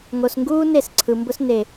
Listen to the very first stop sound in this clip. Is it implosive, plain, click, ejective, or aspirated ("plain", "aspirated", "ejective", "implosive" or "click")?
plain